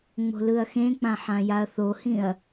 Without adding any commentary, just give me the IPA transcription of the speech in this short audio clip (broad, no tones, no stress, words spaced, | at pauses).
ŋ͡mo̤lɯɐ̯xẽk͡pã ħãjaɐ̯θohĩɐ̯